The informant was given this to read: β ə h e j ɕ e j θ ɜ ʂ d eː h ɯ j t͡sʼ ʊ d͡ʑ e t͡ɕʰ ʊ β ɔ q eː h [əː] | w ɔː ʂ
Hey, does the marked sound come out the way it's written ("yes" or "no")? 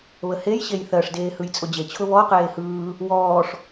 no